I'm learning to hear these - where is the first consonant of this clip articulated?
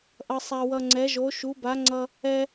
throat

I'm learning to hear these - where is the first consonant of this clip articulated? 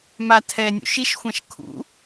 lips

